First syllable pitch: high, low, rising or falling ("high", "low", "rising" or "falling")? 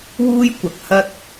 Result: high